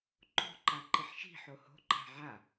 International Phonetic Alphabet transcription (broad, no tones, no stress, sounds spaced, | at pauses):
ǃ o̤ ǃ a ǃ i ħ ʃ i̤ ħ o h o̤ ǃ a̤ ʕ a